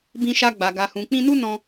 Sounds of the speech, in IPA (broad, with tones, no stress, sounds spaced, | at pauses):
b ĩ˧ ʃ a˧ ɡ͡b a˨ ɡ a˨ h ũ˨ k͡p ĩ˧ n u˦ n ɔ̃˧